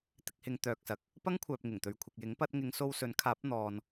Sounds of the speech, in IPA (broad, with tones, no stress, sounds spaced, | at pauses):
t̪ ɪ˧ k̚ h ɪ˨˧ ŋ t̪ œː˨ k̚ s ɐ˨ k̚ | p ɐ˥ ŋ kʷʰ œː˨ p̚ ŋ ɪ˨˩ ŋ t̪ ɵ˨ ɥ kʷʰ ɪ˨ k̚ j ɪ˨˥ ŋ p ɐ˧ t̚ ŋ ɪ˨˧ ŋ s o˧ w s ɵ˨˥ n kʰ aː˨˥ p̚ n̪ ɔː˨ n